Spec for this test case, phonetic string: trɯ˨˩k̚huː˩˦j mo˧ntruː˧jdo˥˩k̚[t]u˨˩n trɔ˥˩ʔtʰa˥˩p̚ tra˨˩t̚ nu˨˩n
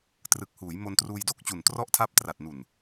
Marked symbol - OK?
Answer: no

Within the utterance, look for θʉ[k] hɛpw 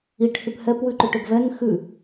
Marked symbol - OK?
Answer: no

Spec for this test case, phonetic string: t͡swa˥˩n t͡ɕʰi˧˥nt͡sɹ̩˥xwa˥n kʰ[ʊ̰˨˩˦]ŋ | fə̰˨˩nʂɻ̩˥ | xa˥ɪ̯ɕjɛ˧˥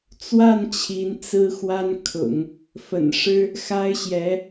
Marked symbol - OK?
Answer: yes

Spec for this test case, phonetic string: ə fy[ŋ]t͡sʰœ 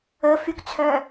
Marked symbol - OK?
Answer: no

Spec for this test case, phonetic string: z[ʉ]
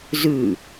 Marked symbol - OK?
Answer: yes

